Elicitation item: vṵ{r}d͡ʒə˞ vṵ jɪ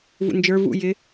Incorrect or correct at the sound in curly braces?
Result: incorrect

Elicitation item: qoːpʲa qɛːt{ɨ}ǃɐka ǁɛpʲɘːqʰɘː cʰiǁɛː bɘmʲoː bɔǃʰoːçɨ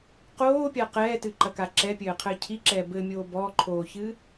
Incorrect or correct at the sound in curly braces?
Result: correct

